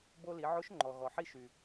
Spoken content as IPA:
b o˧ l i˩˧ ʕ o˧˥ ʃ ŋ͡ǃ ɔ˩ ɣ ɔ˩ ħ i˧ ʃ y˩

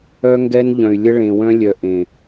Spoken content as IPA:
œ˦ ŋ ɡ ɛ˦ n ʎ œ̃˨ y̯ lʲ ə˦ ɭ ẽ˨ w œ̃˦ lʲ œ˨ ʔ ẽ˨

